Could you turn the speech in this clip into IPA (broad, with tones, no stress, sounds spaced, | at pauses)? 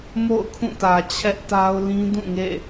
m o̰˦˨ ʊ̯ kʰ ũ˦˨ t ä˨ t͡ɕʰ ɛ˦ ʔ t a˦ ʊ̯ l ĩ˦ d ũ˦˨ ŋ ḛ˦˨